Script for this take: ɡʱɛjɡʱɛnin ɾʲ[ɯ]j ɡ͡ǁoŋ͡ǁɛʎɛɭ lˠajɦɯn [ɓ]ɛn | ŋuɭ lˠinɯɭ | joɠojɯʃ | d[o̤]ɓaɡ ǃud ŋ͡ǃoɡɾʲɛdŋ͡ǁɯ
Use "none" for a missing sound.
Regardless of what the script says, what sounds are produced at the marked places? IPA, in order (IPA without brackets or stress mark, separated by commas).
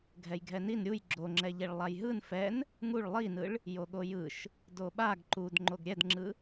u, f, o